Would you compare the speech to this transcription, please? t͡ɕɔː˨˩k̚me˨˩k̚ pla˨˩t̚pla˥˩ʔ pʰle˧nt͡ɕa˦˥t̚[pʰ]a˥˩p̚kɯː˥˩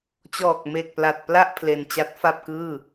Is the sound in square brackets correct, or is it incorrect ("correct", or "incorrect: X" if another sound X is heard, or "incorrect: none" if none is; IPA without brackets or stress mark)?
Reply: incorrect: f